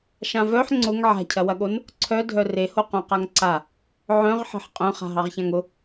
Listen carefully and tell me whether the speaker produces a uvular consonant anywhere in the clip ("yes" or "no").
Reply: yes